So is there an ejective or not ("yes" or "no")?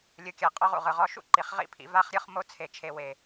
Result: yes